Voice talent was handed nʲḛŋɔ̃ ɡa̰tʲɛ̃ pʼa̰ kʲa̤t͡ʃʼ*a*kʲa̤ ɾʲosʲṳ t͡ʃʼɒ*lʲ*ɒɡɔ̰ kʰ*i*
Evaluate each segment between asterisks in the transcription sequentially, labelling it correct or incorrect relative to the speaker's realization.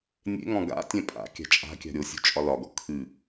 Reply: incorrect: a̤, incorrect: l, incorrect: ɨ

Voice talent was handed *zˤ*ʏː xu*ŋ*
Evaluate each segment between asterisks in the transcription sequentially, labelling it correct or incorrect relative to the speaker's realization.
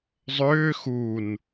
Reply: correct, incorrect: n

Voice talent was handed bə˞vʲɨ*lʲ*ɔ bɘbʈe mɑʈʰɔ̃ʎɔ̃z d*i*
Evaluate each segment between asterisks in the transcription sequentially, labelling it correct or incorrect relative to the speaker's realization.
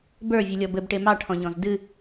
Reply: correct, incorrect: ɨ

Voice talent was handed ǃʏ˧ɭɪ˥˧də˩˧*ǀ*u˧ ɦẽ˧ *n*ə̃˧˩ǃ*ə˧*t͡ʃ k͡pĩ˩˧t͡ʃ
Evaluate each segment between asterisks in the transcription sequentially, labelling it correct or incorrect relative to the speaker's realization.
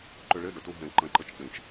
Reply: incorrect: t, incorrect: ǃ, correct

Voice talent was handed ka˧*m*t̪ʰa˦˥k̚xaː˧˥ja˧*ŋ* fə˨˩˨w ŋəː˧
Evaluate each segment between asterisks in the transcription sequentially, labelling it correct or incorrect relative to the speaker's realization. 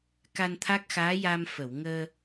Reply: incorrect: n, incorrect: m

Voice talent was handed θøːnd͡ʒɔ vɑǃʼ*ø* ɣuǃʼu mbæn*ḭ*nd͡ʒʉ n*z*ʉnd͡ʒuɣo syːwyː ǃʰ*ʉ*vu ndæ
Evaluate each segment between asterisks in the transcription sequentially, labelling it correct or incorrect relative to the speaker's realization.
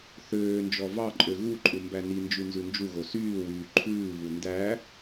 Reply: correct, incorrect: i, correct, incorrect: ʉː

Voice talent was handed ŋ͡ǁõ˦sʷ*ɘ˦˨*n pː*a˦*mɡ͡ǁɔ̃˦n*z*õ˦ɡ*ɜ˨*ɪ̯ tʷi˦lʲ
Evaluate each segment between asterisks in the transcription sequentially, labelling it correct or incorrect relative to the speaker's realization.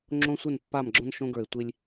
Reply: correct, incorrect: a˦˨, incorrect: ʃ, incorrect: ə˞˨

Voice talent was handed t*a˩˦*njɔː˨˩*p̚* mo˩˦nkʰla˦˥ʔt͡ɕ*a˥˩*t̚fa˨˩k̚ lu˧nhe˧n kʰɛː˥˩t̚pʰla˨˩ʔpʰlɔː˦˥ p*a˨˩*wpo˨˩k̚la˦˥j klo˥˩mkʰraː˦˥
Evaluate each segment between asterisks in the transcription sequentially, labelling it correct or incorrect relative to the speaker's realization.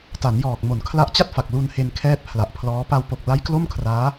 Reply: correct, incorrect: k̚, correct, incorrect: a˧

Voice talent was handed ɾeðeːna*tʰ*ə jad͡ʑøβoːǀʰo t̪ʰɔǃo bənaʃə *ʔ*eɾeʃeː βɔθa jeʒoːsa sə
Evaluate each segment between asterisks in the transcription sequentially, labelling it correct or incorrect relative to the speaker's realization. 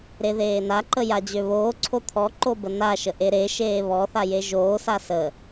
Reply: incorrect: ǃ, correct

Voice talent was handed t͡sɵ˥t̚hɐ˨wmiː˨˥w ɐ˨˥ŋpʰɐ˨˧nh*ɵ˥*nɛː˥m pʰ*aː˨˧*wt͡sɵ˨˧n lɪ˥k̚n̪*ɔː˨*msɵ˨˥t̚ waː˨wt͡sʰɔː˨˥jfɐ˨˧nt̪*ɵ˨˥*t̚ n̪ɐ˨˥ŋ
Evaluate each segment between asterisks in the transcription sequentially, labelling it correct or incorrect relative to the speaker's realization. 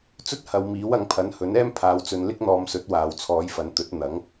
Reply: incorrect: ɵ˨˥, correct, incorrect: ɔː˧, correct

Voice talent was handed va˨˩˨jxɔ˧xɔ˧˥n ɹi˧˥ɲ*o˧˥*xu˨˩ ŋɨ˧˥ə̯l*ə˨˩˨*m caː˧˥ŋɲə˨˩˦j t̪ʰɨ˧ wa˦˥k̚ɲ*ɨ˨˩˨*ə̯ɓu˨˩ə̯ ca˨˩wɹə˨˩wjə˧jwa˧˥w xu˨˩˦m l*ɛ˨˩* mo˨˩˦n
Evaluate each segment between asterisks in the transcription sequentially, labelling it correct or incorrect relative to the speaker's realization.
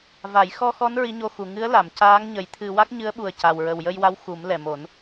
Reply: incorrect: o˧, incorrect: a˨˩˨, incorrect: ɨ˧˥, correct

